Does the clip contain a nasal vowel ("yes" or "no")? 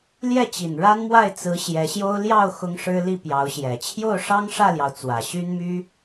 no